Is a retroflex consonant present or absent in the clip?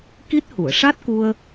present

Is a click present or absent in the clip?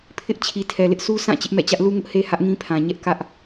absent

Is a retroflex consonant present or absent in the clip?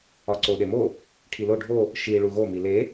present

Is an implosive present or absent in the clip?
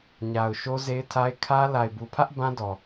absent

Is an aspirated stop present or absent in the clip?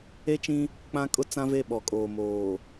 absent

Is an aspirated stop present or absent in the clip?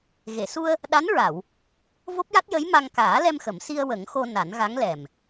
absent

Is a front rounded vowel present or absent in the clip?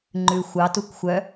present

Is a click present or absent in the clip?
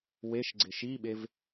present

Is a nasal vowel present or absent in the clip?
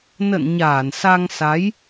absent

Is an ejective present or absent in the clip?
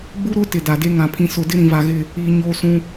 absent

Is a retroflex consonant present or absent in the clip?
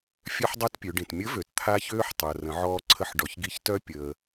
present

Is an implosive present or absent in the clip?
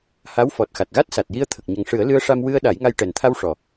present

